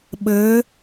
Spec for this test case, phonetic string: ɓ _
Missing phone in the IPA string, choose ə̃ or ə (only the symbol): ə